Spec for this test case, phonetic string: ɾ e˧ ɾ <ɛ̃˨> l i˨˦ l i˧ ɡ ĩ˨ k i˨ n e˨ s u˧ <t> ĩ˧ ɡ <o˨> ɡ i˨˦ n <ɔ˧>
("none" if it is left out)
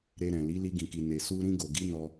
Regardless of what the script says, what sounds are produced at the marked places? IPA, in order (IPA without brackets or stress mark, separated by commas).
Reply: ɛ̃˨, ɾ, o˨, ɔ˧